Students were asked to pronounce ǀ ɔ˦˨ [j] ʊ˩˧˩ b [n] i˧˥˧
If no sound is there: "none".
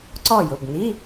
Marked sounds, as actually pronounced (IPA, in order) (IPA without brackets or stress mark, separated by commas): j, n